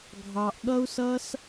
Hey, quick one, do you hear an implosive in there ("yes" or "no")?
yes